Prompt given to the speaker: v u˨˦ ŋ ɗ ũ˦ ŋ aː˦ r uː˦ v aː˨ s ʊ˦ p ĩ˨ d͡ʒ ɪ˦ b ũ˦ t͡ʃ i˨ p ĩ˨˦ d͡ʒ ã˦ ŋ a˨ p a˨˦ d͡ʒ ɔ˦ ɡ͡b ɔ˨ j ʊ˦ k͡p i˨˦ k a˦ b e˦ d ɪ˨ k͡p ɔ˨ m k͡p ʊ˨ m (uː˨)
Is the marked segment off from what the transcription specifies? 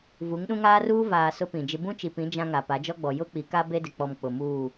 yes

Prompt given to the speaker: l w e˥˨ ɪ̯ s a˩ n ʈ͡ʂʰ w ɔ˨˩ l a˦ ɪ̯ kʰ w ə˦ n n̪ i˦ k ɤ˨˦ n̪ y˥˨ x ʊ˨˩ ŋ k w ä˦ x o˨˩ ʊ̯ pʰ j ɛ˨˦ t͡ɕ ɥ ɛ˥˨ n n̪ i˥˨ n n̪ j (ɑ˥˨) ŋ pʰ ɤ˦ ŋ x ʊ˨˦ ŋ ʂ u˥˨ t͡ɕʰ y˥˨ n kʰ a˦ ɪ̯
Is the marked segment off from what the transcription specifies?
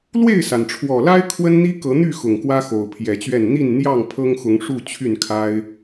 no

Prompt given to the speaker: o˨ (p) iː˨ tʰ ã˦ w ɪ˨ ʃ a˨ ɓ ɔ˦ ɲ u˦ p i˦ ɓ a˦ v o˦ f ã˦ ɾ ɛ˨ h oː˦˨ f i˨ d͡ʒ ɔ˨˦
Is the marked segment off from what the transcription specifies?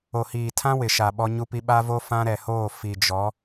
yes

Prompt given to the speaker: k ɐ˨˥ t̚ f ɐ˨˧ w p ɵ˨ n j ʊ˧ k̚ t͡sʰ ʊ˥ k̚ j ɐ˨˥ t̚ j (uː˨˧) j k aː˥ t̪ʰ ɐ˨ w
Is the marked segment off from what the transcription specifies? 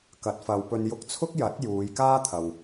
no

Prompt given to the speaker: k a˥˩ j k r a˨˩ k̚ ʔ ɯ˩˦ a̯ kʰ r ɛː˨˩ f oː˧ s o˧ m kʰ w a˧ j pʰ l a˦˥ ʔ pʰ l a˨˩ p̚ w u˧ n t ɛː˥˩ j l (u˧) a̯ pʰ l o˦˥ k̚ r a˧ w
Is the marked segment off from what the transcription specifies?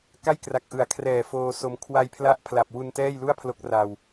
yes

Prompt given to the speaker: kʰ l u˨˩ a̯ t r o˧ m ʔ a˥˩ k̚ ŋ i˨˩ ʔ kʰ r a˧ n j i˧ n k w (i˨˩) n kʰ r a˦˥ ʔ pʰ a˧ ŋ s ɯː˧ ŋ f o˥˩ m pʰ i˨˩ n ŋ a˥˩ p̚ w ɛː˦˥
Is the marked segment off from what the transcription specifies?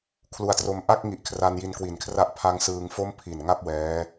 no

